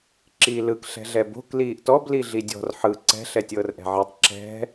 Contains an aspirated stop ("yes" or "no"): no